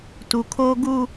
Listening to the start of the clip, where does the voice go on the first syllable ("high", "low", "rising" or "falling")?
low